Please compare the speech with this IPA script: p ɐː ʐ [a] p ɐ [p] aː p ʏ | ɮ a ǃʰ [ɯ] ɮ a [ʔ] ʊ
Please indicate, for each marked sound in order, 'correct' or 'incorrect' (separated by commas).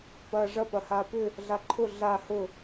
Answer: incorrect, incorrect, incorrect, incorrect